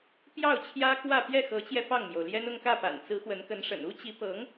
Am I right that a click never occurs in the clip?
yes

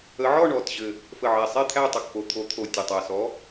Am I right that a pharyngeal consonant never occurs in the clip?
no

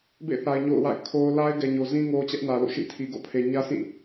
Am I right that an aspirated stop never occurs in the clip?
no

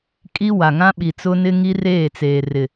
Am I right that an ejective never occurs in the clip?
no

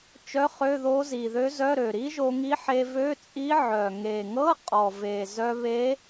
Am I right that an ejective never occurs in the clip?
no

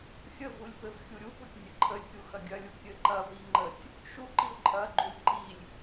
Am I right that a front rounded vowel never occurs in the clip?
yes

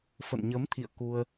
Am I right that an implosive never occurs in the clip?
yes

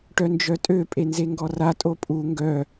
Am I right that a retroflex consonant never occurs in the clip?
no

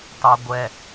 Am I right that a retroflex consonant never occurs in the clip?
yes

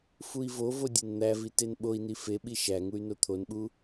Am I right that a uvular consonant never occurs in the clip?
yes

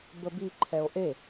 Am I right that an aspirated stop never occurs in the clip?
no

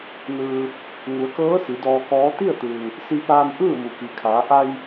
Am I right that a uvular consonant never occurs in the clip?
yes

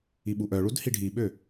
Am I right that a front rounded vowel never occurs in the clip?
no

